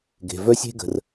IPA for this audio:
ɡe̤˩vœ˥sʲe̤˥ ɡə̤˩r

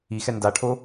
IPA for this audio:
ixɛ ndaʈʰo

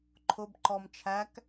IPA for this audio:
ǃʰʊbǃɔm t͡ʃʰæk

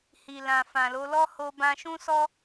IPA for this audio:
hi˨lã˨ fã˨lo˨˦ lɔ˦ho˧bã˧ ʃũ˦sɔ˦

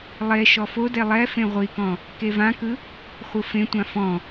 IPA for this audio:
lˠe ʃɔfode lˠɛfẽ ʁʷikɔ̃ | kevãkɯ | χʷɯfẽtʷã fɔ̃

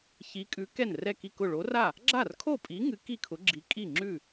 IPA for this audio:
çi˨˥kʼʉ˨˥ kɛ˥˩nrɛ˥˩ki˥˩kʊ˥˩ ɭo˨˥ra˥˩ | ɡ͡ǁa˥˩rkʰo˥˩pʼi˨˥ŋɨ˨˥ ki˥˩kʰʊ˨˥ ɡ͡ǁi˨˥ kʼi˥˩ŋ͡ǁʉ˥˩

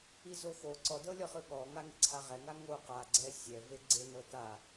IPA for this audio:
izoxo ǀɔdɤlʲɔχɯ ɠɔŋa ŋeǀʰaʁɛŋa ŋo qaɡ͡ǀɛ sʲɛve ɡ͡ǀenɤ ta

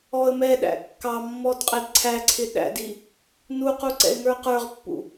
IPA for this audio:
ɔə̯mɛɗæ̰ kːɑmːɔd qʼɛdǀʰæǀʰɪ ɗæ̰di | nuqu ǀɛ̰ɪ̯ŋə˞qə˞ʁpːṵ

